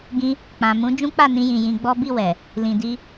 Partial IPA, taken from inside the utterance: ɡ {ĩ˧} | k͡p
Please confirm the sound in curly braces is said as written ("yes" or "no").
yes